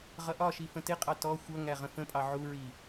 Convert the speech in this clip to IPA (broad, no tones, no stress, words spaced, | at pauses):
ʁʌʔɒʃi fə̃tɪqʼɑ tɔ xʷʌŋæ ʁə̃fə̃pʼɑ ʕuɹi